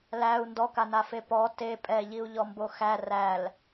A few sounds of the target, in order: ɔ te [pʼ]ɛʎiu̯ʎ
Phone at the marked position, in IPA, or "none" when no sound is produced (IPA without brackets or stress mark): pʼ